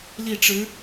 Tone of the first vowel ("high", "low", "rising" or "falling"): falling